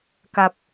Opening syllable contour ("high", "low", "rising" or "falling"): low